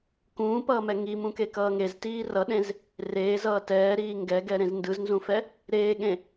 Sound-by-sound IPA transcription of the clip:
kũːpʌːmɛ ŋimũkekʌː ŋeztiː rʌɗẽz | reːzʌː tɛːɾiː ŋɡɛɡɛɾẽz ndɯznzũfɛ | ɾeːɠẽ

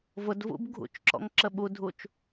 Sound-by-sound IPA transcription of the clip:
vʊdvṵb ɡʱṵt͡ʃǁɔ̰ŋǁə ɓudʱut͡ʃ

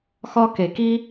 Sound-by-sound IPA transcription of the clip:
xɒ˧ke˨ki˦

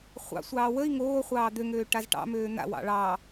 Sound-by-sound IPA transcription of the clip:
χʷɑ̰sʷɑː wəi̯ ŋoː χʷɑːd̪øŋøː ʈazʈɑ̰møː n̪a̰ wɑ̰ɭɑ

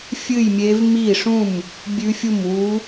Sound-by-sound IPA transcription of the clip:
fʲɨ˥˩jmʲe˧˥v mi˥˩ʂũ˥˩m | bʲʉ˧˥fʲu˥˩mwu˧˥

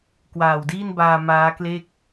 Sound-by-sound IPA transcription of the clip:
kwaː˨˩wdiː˥˩nbaː˧ maː˦˥kleː˥˩k̚

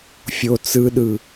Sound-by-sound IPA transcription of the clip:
fʲo t͡sɯɗɯ

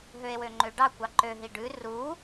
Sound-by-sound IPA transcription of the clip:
ɦøe̯wøŋ͡ǃøɖɑ kʷɑǃø ɦiɖʉ ru

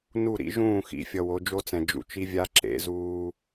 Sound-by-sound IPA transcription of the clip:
nu˦˨ɾḭ˦ ʒũː˦˨xḭ˨ fʲʌ˨wo˨˦d͡ʒo˦t͡sɛ̃˨ d͡ʒṵ˨t͡ʃi˦vʲa˦ ǁḛ˨˦zuː˦

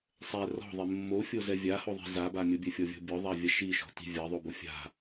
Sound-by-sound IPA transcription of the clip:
sˤɛ rɔ̤ðˤe mːofʲozɛ vʲahoðˤi̤ zaba mʲʊbʲɛfʲɔvʲɔ̤ bʲɔðˤavʲa ʃiʃɔ̤ti̤ vʲaðˤobo fʲa̤

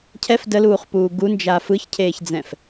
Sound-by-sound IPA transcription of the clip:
cʰɛf dəluːχpuː ɡund͡ʒa fɯçcʰeːçd͡zɛ̃f

